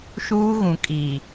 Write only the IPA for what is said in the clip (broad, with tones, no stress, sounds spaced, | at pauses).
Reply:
ʃ uː˦ ɣ ũ˨ kʼ i˨